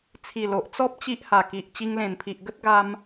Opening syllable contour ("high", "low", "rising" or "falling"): low